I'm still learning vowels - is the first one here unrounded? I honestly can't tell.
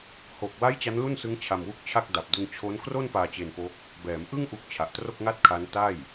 no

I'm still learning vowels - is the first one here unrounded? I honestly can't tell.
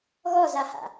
no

